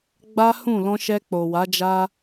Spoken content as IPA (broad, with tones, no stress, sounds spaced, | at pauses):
ɡ͡b a˦ h ũ˦˨ l ɔ̃˧ ʃ ɛ˧ k͡p o˨ w a˨˦ d͡ʒ a˦